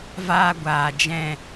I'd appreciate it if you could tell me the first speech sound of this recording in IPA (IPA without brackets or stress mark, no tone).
v